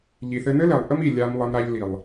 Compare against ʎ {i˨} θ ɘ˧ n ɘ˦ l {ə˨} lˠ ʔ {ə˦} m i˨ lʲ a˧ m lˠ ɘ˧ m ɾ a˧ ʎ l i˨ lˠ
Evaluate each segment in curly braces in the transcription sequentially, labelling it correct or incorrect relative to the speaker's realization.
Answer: correct, incorrect, correct

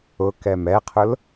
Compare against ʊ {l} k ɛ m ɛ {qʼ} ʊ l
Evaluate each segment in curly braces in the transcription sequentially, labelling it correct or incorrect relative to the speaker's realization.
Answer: incorrect, incorrect

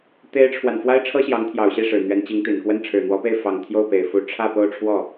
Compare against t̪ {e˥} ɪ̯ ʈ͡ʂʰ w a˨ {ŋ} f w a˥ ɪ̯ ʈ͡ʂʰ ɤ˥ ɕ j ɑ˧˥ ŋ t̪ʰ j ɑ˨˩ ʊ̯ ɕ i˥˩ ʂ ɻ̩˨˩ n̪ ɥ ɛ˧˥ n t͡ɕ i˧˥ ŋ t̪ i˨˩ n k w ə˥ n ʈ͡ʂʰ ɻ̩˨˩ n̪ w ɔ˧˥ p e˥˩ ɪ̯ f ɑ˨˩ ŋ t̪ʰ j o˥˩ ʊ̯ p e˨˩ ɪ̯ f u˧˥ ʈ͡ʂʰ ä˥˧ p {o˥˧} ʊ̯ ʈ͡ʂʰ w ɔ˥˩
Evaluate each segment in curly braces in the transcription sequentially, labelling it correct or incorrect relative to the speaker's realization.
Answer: correct, incorrect, correct

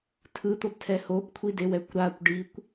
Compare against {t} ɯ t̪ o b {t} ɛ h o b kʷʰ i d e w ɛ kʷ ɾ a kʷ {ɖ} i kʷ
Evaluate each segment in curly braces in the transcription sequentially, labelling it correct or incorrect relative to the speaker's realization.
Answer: incorrect, incorrect, correct

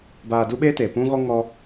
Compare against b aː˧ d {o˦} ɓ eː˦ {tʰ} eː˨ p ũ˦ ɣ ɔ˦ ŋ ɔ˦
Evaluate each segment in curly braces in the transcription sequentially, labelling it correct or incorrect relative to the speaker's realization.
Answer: incorrect, incorrect

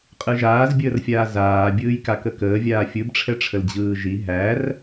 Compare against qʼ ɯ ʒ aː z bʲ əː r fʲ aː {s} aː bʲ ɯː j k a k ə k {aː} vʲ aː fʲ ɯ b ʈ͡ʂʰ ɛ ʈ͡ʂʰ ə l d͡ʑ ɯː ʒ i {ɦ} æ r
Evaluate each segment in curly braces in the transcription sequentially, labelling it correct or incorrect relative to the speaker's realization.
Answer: incorrect, incorrect, correct

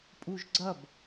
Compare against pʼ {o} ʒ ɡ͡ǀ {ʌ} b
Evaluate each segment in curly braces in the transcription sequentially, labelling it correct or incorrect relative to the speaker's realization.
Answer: incorrect, correct

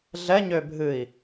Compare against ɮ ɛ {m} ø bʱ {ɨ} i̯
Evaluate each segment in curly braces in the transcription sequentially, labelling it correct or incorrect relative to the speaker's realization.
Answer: incorrect, correct

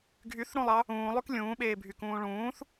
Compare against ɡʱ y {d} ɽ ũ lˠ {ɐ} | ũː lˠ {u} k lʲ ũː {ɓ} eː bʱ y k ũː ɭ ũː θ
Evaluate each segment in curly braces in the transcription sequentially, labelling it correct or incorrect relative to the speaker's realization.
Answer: incorrect, incorrect, incorrect, correct

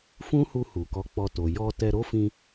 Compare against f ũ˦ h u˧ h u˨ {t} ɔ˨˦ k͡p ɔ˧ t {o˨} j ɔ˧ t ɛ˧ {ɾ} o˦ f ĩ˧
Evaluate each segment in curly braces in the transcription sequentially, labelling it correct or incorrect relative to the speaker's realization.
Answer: incorrect, correct, correct

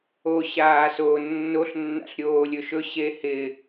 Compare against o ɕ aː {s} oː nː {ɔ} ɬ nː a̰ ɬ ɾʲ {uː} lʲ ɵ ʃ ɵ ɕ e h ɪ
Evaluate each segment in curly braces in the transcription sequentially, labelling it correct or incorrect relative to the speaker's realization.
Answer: correct, incorrect, incorrect

